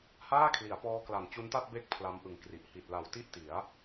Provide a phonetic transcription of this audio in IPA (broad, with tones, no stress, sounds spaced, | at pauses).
h aː˥˩ kʰ l i˩˦ a̯ p ɔː˦˥ k l a˨˩ n t͡ɕ u˦˥ n t a˥˩ t̚ b e˦˥ k̚ pʰ l a˦˥ m ʔ ɯ˨˩ ŋ k r i˨˩ ʔ h i˨˩ t̚ l a˨˩ w t i˥˩ ʔ t i˩˦ a̯